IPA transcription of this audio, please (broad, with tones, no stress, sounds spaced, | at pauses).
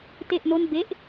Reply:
t e˥˩ ʔ n o˥˩ n b e˥˩ ʔ